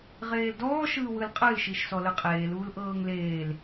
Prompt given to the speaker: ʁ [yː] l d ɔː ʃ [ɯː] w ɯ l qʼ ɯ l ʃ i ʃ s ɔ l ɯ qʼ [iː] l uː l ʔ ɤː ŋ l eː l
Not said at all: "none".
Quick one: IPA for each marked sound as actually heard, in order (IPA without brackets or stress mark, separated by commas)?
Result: eː, ɯː, eː